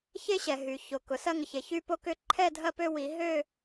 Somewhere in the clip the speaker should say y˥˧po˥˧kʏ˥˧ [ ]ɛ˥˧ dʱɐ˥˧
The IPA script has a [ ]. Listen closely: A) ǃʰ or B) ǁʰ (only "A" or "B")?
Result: A